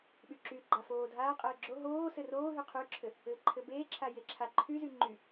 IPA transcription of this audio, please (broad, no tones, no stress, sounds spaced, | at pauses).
ɓ y ǁ y ɡ͡ǃ a f oː dʱ aː qʼ ɘː ɡ͡ǁ o ɦ oː s ɘ r oː ɦ y qʰ y ǁʰ ɘ | ɘː ǃʰ ɘ b eː ǁʰ a j e ǁʰ a ǃʰ y z y ŋ͡ǃ y